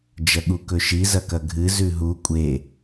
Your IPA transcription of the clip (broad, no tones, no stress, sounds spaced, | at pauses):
d͡ʒ ɐ ɠ u k ɵ ʃ i z ɐ k ɐ ɡʱ ɨ z ʉ ɦ u kʷʼ e